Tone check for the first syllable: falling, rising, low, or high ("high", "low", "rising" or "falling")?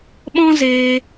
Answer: high